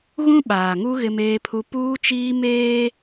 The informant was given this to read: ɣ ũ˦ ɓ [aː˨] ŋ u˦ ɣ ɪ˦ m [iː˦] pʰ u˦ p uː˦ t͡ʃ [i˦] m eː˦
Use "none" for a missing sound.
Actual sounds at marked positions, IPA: aː˨, eː˦, iː˦

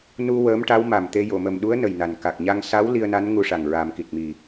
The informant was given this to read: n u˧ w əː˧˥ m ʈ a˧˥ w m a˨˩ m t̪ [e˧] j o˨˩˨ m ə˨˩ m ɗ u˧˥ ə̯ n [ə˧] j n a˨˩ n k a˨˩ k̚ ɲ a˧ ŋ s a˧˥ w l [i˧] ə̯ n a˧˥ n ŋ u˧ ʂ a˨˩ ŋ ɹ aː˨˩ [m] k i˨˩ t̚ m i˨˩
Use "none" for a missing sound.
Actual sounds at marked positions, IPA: e˧, ə˨˩, i˧, m

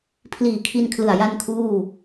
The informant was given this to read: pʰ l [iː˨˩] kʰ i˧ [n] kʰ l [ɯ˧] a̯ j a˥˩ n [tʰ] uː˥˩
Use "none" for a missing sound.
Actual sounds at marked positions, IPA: iː˨˩, n, ɯ˨˩, kʰ

